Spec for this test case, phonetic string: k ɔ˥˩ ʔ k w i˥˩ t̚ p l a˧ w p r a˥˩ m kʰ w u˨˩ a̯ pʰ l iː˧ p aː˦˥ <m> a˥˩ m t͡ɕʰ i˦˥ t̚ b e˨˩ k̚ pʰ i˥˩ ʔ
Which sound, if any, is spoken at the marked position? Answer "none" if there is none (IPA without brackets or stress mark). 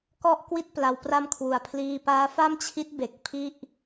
f